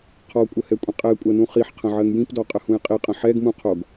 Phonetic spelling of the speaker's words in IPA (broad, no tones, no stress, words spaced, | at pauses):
qʰɔkʷʼəhɛkʷʼə̃ qʼɛkʷʼɜnũ χiħqʰə̃ʕɜŋ jĩpdɔqʼəhũj qʼiqʼə̃ ħɛɡmũqʰoɡ